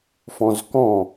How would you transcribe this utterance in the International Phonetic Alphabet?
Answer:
f ɔ̃ z k ɔ̃

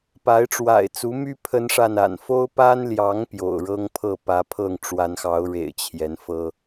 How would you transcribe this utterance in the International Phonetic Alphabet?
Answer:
p a˨˦ ɪ̯ ʈ͡ʂ w a̰˨˩ ɪ̯ t͡s u˨˦ m y˦ pʰ ə˦ n ʂ a˥˨ n a̰˨˩ n f o˦ ʊ̯ p a˦ n l j ɑ˨˦ ŋ p j o̰˨˩ ʊ̯ ɻ ɤ˦ ŋ pʰ ɤ˥˨ p ä˨˦ pʰ ɤ˥˨ ŋ ʈ͡ʂ w a˨˦ n x ɑ˨˦ ʊ̯ ɻ ḛ˨˩ ɪ̯ t͡ɕʰ j ɛ˨˦ n f ɤ˦

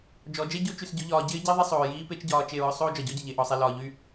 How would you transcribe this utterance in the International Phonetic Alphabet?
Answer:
d͡ʒ ɔ˨˦ d͡ʒ e˦ ɟ o˦ t͡ʃ y˧ s ɟ ʊ˦ ʎ ɒː˧ ɟ ɪː˦ ɟ i˦ ðˤ ɪ˦ sˤ oː˨ j iː˦ p e˦ t͡ʃ ɟ ɒː˧ t͡ʃ e˦˨ ɹ ʊ˦ sˤ oː˦ d͡ʒ ɒ˨ ɟ ɔ˦ ɟ ə˨ ʎ e˨ ʔ ɔ˨ sˤ i˨ l ɒː˨ ʎ y˦˨

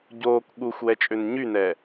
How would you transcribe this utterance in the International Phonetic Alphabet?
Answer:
ɟ oː k ɠ u xʷ w ɛ t͡ʃʼ ø n ɲ y n ɛ

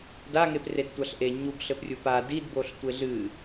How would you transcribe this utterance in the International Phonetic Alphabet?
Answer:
d a ŋ e p r e d tʷ a ɬ ʔ e ɲ u ɡ ɬ ɘ p rʲ u p a d i d b o ɬ tʷ e ɮ ɨ

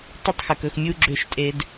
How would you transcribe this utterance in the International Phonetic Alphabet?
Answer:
tˤ ɪ˦˨ tˤ x ʏ˨ k ɵ˨ x mʲ u˦ ɡ͡ǁ ʏ˦˨ ʃ tʼ e˦ d

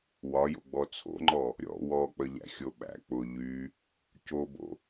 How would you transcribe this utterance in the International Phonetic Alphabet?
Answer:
w ɒ j o̰ ɡ͡b ɔ t͡sʰ o̰ ŋ͡ǃ ɔ | ɾʲ ɔ̰ w ɔ k͡p ə ʎ æ̰ xʲ o ɓ æ̰ k͡p ʊ ʎ y | c o b o̰

